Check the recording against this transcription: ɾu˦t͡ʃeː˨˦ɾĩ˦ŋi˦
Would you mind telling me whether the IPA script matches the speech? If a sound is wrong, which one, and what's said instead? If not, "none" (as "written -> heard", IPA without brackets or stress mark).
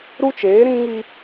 none